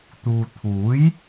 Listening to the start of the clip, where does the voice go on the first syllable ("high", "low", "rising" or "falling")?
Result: low